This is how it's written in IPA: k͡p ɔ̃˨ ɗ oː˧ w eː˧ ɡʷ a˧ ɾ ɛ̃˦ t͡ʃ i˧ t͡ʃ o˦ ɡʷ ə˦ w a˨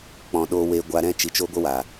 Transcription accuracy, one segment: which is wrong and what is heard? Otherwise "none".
none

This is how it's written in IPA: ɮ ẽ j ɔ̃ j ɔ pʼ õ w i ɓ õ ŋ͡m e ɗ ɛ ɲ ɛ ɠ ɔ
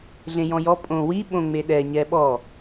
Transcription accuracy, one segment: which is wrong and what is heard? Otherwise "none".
ɠ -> ɓ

